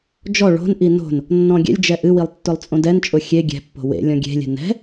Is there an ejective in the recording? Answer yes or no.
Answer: yes